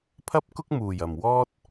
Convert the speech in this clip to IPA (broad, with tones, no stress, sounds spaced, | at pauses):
pʰ ɐ˥ p̚ k ʊ˥ k̚ m uː˨˩ j ɐ˨˩ m w ɔː˥ t̚